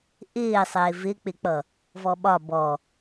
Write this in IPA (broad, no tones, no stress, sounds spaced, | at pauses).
ʔ ɪː sˤ ɪː v ɪ k͡p ɪ k͡p ʌ | v ɔ ɓ ɒ b ɔ